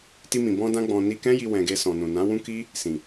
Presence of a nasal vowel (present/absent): present